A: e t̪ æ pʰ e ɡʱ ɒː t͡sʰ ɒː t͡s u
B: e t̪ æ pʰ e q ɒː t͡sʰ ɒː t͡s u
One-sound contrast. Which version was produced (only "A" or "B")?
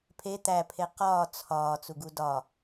B